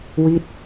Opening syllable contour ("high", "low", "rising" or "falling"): falling